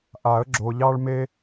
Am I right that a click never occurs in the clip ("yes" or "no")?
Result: no